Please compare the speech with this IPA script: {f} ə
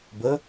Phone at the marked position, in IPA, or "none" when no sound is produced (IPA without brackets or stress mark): b